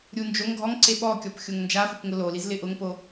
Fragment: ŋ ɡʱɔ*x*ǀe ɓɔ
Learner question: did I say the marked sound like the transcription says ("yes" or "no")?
no